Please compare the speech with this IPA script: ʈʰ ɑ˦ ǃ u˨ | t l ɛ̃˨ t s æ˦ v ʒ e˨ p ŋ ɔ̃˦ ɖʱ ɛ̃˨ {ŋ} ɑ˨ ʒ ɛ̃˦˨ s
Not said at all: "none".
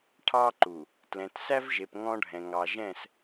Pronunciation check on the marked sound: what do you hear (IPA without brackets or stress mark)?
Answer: ŋ